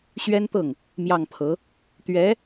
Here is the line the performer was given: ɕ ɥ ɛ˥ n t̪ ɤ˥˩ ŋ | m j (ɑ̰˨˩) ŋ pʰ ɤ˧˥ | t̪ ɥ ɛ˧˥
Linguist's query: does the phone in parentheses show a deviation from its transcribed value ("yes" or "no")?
yes